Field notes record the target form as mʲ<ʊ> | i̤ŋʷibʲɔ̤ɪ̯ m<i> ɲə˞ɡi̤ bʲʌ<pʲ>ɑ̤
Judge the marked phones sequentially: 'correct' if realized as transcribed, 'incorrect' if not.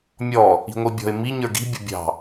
incorrect: ɔ, correct, incorrect: bʲ

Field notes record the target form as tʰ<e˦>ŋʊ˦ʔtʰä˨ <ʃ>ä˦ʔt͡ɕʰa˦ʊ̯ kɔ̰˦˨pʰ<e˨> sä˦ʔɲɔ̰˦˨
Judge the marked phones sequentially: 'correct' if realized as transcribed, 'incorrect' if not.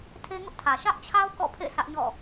correct, correct, incorrect: ḛ˦˨

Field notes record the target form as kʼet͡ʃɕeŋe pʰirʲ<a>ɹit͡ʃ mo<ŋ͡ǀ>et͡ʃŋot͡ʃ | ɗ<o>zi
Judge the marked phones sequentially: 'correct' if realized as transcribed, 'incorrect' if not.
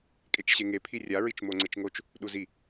correct, correct, incorrect: u

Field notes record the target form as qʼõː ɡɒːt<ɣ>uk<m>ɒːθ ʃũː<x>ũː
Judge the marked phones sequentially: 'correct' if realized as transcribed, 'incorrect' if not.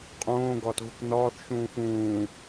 correct, incorrect: n, correct

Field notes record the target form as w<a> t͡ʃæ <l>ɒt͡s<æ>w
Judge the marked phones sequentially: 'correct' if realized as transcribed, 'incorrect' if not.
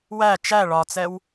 incorrect: æ, incorrect: ɭ, incorrect: ɛ

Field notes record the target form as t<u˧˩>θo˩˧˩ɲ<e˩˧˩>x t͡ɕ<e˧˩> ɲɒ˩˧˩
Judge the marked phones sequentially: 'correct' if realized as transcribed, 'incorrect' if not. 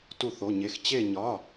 correct, correct, correct

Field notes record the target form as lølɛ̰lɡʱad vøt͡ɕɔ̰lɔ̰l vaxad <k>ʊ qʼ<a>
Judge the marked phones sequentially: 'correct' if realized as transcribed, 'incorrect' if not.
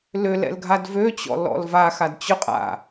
incorrect: t͡ɕ, incorrect: a̰

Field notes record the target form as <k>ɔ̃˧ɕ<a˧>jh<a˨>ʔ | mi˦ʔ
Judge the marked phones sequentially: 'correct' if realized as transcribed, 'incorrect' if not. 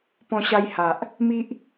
incorrect: p, correct, correct

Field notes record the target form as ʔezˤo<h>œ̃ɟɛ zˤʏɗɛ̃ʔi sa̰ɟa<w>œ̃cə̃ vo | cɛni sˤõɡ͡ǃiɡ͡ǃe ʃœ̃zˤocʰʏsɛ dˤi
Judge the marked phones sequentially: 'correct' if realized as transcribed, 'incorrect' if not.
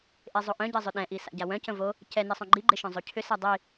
incorrect: ʔ, correct

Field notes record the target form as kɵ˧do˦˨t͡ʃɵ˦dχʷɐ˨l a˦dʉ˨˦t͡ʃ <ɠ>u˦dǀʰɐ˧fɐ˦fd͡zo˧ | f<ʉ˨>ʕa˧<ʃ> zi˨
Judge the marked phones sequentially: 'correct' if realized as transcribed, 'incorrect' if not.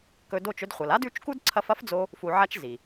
incorrect: k, incorrect: u˨, incorrect: t͡ʃ

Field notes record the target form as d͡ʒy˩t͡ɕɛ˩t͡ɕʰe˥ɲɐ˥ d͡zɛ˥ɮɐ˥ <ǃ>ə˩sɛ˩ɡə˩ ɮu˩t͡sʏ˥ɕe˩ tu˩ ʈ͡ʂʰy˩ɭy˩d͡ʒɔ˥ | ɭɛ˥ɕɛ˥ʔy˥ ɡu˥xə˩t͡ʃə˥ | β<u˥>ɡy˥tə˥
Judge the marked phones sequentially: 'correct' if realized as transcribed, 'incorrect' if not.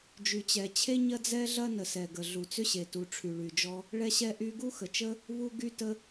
incorrect: n, correct

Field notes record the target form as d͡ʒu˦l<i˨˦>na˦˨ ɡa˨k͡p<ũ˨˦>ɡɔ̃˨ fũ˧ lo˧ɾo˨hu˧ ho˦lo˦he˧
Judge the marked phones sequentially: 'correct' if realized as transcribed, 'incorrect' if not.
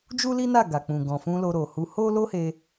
incorrect: i˦, incorrect: ũ˨

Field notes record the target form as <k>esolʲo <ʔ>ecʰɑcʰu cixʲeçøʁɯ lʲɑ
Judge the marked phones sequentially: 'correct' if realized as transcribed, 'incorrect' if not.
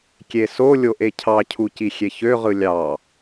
incorrect: kʲ, correct

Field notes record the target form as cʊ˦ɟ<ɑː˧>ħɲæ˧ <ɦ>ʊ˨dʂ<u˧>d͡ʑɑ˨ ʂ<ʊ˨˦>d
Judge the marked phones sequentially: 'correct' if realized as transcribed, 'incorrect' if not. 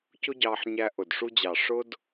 correct, incorrect: ʔ, correct, incorrect: ʊ˦

